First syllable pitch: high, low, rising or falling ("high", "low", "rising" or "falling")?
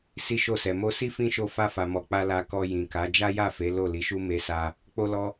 high